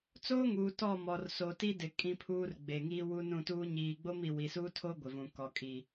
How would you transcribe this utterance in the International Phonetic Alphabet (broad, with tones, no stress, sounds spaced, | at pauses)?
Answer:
t͡s oː˦ ŋ uː˨ t ɔ˦˨ m ɔ˨ r s o˨ t i˦ d ɪ˨ kʼ ĩ˨ pʰ uː˨ r ɡ͡b eː˨ ŋ iː˦ w u˦ n ũ˦˨ t uː˦ ɲ iː˨ ɡ͡b o˦ m i˨ w i˨ s uː˦ tʰ o˦ ɡʷ ɪ˨ v ũ˨ k ɔ˨ kʼ i˨